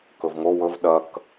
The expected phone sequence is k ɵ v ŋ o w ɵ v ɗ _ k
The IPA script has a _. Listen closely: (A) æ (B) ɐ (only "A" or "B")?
B